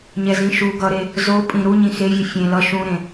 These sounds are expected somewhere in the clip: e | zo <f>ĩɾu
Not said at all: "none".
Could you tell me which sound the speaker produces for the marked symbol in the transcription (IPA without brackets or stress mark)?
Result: pʼ